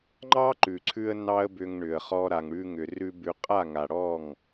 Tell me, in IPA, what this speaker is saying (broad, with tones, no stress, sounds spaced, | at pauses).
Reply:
ŋ͡ǃ ɑ˦ ǃ ʉ˨ ǀʰ ʉ˧ ə̯ n ɑ˦ ə̯ b ʏ˧ ŋ ɳ ʏ˨ ə̯ χ ɔ˧ ɾ a˨ ŋ ɽ ʉ˧ ŋ ʏ˨ r ʉ˧ b ʉ˨ qʼ a˦˨ ŋ a˨ ɽ ɔ˦˨ ŋ